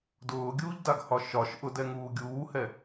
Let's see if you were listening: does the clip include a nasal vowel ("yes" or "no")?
no